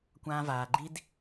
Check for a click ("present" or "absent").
present